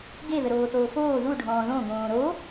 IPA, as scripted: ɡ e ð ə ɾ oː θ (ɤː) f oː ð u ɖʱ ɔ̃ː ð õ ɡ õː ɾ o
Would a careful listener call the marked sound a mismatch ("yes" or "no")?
yes